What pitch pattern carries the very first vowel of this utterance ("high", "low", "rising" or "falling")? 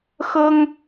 high